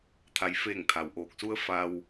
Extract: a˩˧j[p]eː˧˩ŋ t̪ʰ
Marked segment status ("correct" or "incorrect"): incorrect